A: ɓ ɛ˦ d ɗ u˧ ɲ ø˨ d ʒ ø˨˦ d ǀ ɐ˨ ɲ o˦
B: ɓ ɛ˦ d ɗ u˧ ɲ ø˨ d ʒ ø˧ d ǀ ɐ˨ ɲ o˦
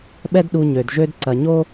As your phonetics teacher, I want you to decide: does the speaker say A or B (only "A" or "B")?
B